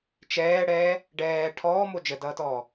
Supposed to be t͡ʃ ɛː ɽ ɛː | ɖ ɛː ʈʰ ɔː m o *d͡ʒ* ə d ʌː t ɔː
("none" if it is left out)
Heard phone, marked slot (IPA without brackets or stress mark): d͡ʒ